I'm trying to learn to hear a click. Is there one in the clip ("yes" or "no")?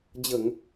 no